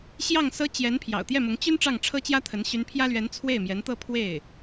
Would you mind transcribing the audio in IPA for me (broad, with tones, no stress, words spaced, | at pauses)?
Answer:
ɕjɑ˥˩ŋ sɤ˥ t͡ɕjɛ˧˥n pʰjɑ̰˨˩ʊ̯t̪jɛ˥˩mʊ˧˥ŋ t͡ɕy˥n ʈ͡ʂɑ˥˩ŋʈ͡ʂʰɤ˥t͡ɕjä˥t̪ʰə˧˥n ɕy˧˥npʰjä˥lɥɛ˧˥n t͡sʰwe˥˩ɪ̯mjɛ˧˥nt̪ɤ˥˧ pʰwe˥˩ɪ̯